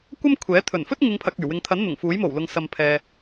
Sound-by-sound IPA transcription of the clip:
kʷ ɐ˥ m kʷʰ ɛː˨˥ t̪ʰ ɵ˨˩ n f ɵ˥ t̚ ŋ ɪ˨˧ ŋ pʰ ɐ˨ k̚ yː˨˩ w ɪ˨ ŋ t̪ʰ ɐ˨˥ n n̪ ʊ˨˩ ŋ f uː˨˥ j m o˨˩ w l ʊ˨ ŋ s ɐ˨ m pʰ ɛː˨

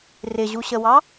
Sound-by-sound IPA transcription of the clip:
r ɪ ʑ u ɕ ə w ɑ

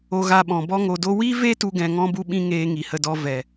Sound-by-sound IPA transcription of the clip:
o˧ ɣ a˧ ɓ ɔ̃˨ b ɔ˦ ŋ o˧ d o˦ w i˦ v e˦ t u˦ ɡ ɛ̃˧ ŋ ɔ̃˦ b u˦ ɓ ĩ˦ ŋ eː˧ ŋ i˨ h ə˧ d ɔ˧ v ɛ˨

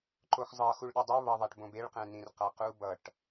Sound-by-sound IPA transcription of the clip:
ǃ o x zˤ ʌ x u ɭ ɗ ɛ dˤ i β ʌ ðˤ a ʈ b õ b e ɭ q ɛ̃ n ĩ r q a q u b ʌ ʈ

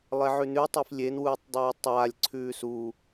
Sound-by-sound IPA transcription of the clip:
lˠ e ʕ ʉ n ʉ tˤ e f lʲ e n w uː tˤ dˤ ʉː tˤ aː lʲ ǀʰ ʉː s u

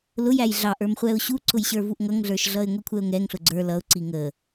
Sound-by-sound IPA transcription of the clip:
l ʊ j æ j ɮ ɑ ʔ ə˞ m χʷ ɛ ʊ̯ ɕ u ǀ ʊ j ɕ ə˞ v u ʔ ŋ ʌ ŋ ɮ ə˞ ʃ ɮ ʌ ɪ̯ ŋʷ i kʷʰ ɛ ʊ̯ ŋ ɛ ŋ ɬ ʊ ɡ͡ǀ ə˞ l ʌ ʊ̯ ǀ i ŋ ə

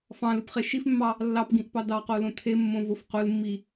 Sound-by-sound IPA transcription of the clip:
f ɑ̃ l ɨ p χ e ʃ i f mː ɑ | lː ɑ p ɡ ĩ ʔ p ɑ d ɑ q o l õ tʰ e mː õ v o f q o l mː i

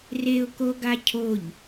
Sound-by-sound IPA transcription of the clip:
r e ʊ̯ k o ɡ a cʰ o ʎ

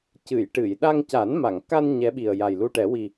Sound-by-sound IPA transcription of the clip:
c ɨ˨˩˨ j ʈ ɨ˨˩˨ j ɗ a˧ ŋ c a˨˩˦ n m a˨˩˨ ŋ k a˧ n ɲ ɛ˧˥ ɓ i˨˩ ə̯ j a˨˩ j l u˧ ʈ ɛ˨˩˦ w i˨˩

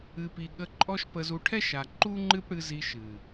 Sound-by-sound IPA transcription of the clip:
ɨ˨ p i˨ ɠ ə˧ ǃʼ ɔ˦ ʃ p ə˧ z u˧ ʈʰ ɛ˦ ʃ a˨ ǃ u˦ ŋ͡ǃ ɨ˦ p ɽ ɨ˧ z i˧ ʃ ɨ˨

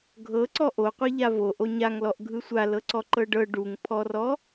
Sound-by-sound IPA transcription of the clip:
ɡʱ ɤ ǀ ɔ ʔ o qʷ i ʎ a v o ʔ o ɲ a ŋ l ɔ ʔ ɡʱ ɯ sʷ a l ɤ ǀ ɔ ǃ ɤ ɖ ɤ ɖ u ŋ pʰ ɔ r ɔ

